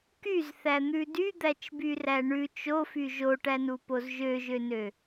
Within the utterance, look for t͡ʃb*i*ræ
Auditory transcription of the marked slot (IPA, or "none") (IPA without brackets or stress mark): y